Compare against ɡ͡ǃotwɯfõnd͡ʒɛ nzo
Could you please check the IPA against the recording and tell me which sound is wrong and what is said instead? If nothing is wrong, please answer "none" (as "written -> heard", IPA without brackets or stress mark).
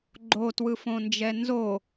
none